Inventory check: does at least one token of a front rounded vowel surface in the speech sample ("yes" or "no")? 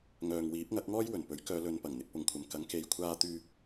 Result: yes